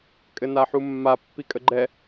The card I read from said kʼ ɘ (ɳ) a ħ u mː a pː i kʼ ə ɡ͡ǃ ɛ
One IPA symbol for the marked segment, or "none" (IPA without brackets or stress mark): n